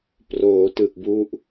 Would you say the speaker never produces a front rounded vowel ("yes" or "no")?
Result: yes